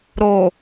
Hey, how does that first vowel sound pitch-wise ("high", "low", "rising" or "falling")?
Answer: low